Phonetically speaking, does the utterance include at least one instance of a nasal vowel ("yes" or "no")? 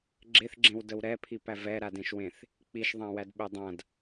yes